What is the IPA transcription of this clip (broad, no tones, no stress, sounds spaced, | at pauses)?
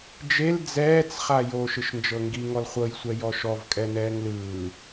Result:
d͡ʒ e l d͡z ɛː t͡s χ a j oː ʃ ɯ ʃ n d͡ʒ ɤ ŋ ɡ i ŋ ɔ l χʷ ɤ j sʷ ɛ j ɔ ʃ ɔ v kʼ ɛ n ɛː ŋ l ɯː